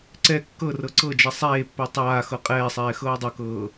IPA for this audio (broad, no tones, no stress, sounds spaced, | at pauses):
ǀ ɛ kː ɤ r ɤ ǀ ɤ d͡ʒ ɛ sˤ eː pː e tˤ aː x ɤ qʼ ɛː sˤ ɛː x ɤː dˤ ɤ k ɤː